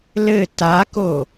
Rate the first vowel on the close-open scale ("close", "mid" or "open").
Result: mid